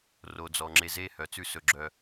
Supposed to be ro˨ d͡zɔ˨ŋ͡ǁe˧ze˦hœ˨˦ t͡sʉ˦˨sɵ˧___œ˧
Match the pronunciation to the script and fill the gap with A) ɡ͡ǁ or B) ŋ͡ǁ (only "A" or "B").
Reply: A